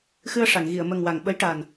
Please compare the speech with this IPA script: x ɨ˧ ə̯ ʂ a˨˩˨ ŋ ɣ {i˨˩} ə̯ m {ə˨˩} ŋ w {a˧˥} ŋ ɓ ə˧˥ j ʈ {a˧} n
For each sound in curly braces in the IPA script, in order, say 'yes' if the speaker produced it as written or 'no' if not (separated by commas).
no, yes, no, no